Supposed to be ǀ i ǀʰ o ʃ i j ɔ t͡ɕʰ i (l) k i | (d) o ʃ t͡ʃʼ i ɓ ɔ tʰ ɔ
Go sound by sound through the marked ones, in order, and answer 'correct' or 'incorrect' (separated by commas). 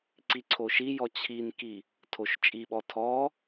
incorrect, incorrect